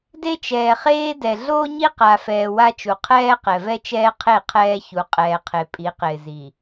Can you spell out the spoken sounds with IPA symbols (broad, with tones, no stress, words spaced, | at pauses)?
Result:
de˦t͡ʃɛː˨χeː˦dɛ˨ ɮoː˦ɲi˦qa˨fɛː˨ wa˦t͡ʃu˨ qʰɛː˦ qɛ˨vɛ˦t͡ʃɛː˦qʰe˦˨ qʰɛː˦çu˨ qʼɛː˨qʰe˨pʼi˨˦qɪː˨ zi˨